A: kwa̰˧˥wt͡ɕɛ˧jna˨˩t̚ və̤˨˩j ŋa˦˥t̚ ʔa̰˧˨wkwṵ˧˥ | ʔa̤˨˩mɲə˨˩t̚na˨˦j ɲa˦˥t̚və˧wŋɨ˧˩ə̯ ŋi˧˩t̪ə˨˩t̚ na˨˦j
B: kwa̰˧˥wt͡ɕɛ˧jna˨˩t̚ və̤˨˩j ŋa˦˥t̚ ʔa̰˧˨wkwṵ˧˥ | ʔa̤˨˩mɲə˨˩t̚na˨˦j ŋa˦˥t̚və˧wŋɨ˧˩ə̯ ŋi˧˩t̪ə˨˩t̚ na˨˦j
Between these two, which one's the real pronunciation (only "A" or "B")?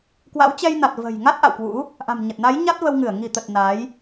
A